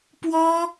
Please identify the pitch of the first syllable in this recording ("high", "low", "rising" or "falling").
high